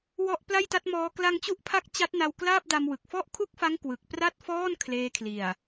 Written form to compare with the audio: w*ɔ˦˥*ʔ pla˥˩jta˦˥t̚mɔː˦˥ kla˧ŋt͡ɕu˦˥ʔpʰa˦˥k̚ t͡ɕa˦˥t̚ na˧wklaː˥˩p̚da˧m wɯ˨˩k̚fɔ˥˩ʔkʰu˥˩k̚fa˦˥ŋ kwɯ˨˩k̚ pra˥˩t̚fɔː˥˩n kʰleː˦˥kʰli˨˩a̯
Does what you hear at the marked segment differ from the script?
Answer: no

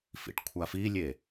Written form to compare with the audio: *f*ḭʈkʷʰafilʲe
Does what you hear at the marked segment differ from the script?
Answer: no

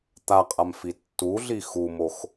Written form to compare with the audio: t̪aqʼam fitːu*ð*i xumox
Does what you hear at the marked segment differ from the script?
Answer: yes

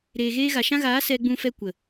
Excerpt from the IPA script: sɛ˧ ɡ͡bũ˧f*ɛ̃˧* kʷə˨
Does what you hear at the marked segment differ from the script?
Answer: yes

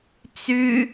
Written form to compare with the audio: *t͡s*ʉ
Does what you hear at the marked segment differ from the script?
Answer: no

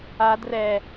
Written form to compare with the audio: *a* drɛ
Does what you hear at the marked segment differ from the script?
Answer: no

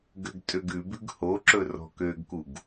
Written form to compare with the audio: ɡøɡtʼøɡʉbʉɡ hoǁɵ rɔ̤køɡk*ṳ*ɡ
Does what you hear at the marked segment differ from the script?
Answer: yes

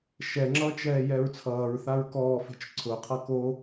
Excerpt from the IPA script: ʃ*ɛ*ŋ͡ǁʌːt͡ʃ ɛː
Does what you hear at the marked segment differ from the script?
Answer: no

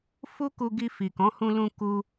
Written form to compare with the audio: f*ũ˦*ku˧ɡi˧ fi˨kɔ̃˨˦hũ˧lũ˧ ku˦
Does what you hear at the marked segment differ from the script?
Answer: yes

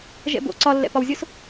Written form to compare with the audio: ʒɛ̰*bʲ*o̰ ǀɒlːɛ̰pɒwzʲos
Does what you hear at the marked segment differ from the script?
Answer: yes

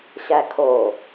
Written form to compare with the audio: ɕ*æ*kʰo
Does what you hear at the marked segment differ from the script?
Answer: no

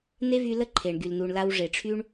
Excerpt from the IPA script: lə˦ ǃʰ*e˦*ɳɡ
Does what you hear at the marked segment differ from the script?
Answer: yes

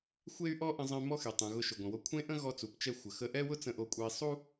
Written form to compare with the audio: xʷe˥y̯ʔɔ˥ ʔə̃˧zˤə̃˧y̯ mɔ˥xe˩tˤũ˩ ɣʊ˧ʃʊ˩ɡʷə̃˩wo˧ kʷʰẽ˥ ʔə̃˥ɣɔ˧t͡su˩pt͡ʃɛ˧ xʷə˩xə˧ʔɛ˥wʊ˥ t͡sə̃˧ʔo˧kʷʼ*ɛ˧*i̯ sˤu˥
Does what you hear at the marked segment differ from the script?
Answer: no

